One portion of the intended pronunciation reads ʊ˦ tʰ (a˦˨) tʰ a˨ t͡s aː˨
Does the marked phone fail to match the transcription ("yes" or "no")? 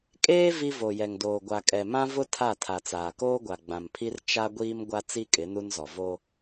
no